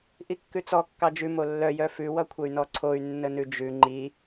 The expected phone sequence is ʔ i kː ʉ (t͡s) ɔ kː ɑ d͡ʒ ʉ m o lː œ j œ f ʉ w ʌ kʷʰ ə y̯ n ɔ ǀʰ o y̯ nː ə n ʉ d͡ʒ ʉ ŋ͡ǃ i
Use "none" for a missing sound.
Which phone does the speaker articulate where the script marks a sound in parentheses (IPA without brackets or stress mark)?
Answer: t͡s